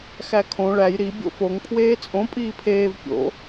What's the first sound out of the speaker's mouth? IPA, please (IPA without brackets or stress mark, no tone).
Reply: x